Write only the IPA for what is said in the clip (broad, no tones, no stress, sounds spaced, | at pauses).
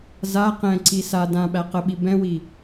z a q ɛ̃ ǀ i s a d ã ɓ æ q ə ɓ i b ɛ̃ w i